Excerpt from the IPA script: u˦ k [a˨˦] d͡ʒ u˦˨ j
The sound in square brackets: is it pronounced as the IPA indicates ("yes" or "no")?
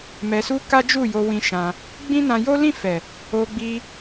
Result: no